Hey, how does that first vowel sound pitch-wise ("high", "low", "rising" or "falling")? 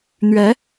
rising